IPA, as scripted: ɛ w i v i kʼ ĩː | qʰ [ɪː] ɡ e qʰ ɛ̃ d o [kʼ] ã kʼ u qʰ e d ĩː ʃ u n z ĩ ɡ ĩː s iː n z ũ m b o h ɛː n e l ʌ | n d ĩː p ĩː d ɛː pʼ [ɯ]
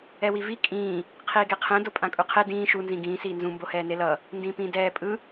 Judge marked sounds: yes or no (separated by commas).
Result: no, no, yes